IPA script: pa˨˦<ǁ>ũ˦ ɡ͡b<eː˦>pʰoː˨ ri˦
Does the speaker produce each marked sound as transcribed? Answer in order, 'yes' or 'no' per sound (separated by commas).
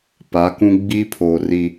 no, no